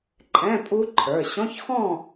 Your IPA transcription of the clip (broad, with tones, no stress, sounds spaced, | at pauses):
ǃʼ ɛ̃˧˥˧ pʼ u˦˥ ǃʰ ə˞˩˧˩ ɕ ɔ̃˧˥˧ ç x ɔ̃˥˨